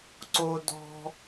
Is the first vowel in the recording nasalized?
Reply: no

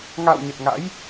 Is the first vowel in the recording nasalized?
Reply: no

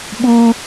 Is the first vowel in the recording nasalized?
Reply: no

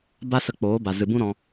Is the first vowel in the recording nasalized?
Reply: no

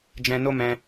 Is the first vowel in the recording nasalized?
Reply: yes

